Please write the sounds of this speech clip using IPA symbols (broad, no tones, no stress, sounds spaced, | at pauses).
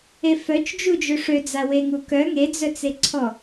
e f œ t͡ʃ d͡ʒ u d͡ʒ ø ʂ ø d͡z a w e ŋ u k œ ŋ e d͡z œ t͡s e ǀʰ ɔ